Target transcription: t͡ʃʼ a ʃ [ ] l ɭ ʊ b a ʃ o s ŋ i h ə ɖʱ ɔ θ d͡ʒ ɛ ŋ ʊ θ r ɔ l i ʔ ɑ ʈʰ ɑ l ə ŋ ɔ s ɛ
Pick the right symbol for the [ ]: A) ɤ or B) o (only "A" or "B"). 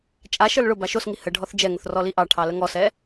A